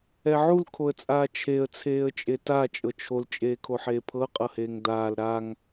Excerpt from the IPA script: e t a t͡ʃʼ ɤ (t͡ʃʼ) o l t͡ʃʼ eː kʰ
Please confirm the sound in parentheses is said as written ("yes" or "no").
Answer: no